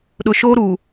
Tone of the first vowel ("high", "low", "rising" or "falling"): low